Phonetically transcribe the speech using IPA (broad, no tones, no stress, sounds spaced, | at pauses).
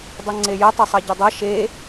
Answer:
dˤ ɐ ŋ͡ǀ e j ə tˤ ə sˤ ɐ ɟ ə dˤ ɐ ʃ e